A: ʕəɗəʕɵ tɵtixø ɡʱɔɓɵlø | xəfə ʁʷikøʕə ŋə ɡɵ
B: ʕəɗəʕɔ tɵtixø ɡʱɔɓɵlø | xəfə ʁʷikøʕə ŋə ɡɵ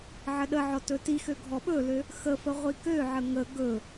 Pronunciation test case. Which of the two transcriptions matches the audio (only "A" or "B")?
B